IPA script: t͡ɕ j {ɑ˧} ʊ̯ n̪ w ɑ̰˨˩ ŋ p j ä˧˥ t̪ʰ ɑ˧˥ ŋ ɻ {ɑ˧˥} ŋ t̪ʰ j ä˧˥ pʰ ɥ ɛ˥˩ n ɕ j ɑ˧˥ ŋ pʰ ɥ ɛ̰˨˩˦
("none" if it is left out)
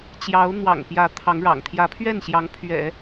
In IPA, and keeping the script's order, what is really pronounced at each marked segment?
ɑ˧˥, ɑ̰˨˩

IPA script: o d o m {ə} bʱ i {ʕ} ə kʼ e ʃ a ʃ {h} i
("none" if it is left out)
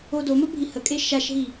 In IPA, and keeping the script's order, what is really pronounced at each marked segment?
ə, h, ɦ

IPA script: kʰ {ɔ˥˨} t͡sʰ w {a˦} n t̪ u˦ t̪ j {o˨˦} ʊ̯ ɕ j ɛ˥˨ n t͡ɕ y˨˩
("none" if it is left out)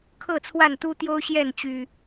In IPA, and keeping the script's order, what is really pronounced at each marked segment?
ɤ˥˨, a˥˨, o˦

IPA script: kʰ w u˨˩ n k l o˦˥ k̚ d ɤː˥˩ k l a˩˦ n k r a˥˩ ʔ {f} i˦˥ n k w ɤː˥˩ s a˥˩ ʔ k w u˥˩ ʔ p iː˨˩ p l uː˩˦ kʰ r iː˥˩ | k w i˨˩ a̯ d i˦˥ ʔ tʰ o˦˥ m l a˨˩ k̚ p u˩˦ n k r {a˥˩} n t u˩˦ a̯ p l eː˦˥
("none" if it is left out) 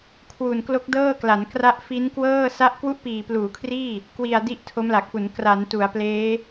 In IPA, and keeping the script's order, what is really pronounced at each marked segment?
f, a˩˦

